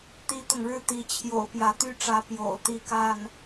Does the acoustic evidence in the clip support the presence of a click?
no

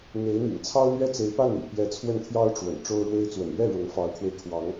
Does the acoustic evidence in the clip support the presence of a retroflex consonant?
yes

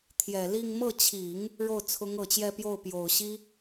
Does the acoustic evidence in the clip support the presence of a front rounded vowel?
no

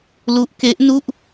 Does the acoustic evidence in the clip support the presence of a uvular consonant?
no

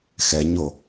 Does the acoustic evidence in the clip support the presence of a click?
no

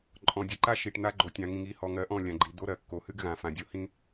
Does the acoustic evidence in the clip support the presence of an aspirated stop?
no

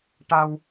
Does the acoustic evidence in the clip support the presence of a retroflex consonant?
yes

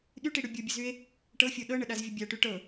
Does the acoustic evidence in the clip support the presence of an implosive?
yes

